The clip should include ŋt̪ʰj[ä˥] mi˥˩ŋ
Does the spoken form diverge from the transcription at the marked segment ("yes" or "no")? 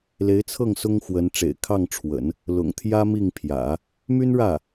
no